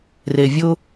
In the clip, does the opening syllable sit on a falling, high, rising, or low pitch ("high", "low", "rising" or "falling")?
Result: low